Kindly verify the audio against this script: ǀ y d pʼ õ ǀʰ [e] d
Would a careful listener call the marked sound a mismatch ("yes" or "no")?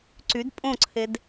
no